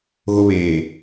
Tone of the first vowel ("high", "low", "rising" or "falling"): high